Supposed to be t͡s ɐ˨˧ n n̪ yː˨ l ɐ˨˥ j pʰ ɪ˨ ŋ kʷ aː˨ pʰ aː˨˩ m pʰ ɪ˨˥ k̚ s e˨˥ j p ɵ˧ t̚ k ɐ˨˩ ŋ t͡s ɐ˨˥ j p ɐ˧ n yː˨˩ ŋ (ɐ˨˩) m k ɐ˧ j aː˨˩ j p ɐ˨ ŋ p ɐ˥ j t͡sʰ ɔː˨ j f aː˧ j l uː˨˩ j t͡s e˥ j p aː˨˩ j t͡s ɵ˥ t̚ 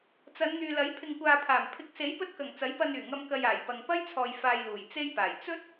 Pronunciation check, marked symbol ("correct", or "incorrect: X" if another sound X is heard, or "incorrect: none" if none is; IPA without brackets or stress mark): incorrect: ɐ˧